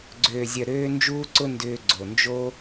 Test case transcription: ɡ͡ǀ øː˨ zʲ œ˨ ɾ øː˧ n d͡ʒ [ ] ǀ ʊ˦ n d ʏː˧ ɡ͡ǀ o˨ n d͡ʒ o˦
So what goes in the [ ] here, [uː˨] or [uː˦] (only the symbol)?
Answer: uː˦